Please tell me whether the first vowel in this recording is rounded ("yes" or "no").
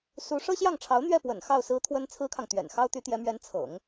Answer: yes